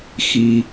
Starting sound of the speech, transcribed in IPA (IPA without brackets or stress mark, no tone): x